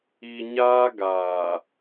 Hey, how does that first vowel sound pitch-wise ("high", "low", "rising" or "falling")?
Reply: low